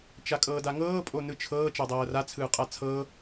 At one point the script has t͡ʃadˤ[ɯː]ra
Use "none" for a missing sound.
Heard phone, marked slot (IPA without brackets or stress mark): ɤː